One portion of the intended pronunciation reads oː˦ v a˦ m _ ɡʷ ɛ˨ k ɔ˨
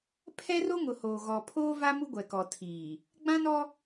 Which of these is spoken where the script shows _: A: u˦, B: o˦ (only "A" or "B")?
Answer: A